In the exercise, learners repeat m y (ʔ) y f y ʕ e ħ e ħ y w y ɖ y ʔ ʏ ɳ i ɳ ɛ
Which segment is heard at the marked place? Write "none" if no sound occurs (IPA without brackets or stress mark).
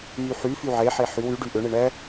ħ